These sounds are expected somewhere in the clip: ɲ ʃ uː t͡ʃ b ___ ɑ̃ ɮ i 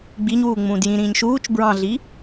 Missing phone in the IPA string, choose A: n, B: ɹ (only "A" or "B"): B